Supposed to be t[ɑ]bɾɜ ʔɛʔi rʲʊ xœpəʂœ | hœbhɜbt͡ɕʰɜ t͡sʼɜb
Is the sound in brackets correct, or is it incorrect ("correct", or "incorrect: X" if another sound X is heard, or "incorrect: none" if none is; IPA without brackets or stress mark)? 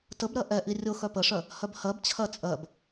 incorrect: ə